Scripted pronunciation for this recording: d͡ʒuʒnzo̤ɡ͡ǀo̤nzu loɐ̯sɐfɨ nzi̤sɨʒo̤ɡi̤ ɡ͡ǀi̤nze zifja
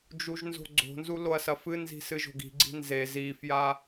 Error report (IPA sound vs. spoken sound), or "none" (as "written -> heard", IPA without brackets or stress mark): none